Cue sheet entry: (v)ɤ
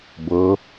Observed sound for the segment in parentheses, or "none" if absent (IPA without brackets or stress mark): b